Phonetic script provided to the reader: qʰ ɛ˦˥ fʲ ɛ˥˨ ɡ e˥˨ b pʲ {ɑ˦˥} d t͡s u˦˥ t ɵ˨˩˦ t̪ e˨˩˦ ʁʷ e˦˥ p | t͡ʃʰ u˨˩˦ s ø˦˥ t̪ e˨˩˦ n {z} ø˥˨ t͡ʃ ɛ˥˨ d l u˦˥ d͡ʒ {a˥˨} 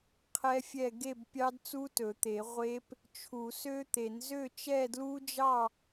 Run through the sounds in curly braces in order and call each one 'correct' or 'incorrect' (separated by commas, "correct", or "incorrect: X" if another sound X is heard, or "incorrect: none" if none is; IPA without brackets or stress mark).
correct, correct, incorrect: ɑ˥˨